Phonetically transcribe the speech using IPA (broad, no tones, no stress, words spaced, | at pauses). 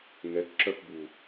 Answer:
ŋɛkǁœfbu